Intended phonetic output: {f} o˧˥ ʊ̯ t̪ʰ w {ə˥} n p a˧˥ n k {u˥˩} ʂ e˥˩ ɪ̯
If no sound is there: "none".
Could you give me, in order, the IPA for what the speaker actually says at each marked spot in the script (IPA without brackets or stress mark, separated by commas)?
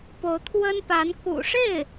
p, ə˥, ṵ˨˩